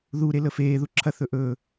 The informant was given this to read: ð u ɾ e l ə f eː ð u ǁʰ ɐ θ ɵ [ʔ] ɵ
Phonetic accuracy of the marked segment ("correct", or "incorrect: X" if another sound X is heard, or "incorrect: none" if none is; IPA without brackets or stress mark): correct